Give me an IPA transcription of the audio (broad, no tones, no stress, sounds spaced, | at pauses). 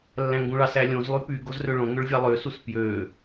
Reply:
lː æ̃ ŋ ɡ ũ ɭ ɑ s æ lʲ õ z lˠ y p y ɡ o z r ø ɭ õ ŋ ø ɭ vʲ ɑ lˠ ø s u s p j ø